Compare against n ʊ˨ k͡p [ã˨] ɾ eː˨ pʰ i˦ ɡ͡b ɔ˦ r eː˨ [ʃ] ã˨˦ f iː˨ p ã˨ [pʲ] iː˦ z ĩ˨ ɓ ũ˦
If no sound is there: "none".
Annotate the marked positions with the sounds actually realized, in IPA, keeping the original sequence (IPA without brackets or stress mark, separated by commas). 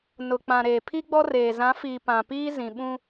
ã˨, z, p